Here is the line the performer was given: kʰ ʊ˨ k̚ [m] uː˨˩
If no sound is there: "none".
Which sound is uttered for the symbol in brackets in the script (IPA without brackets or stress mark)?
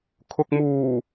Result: m